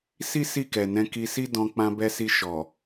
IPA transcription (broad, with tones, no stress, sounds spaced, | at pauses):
s i˦ s i˦˨ k ɛ˨ n ɛ̃˧ k i˧ s i˦ d ɔ̃˧ k͡p ã˧ b ɛ˧ s i˧ ʃ ɔ˨